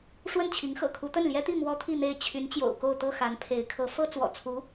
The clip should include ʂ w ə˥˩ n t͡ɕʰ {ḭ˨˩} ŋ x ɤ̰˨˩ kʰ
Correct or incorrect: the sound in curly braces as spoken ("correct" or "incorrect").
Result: incorrect